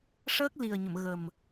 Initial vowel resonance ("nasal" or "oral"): oral